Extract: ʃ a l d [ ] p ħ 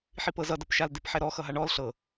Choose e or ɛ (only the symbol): e